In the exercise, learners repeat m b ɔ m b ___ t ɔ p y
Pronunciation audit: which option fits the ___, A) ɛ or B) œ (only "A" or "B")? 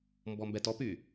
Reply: A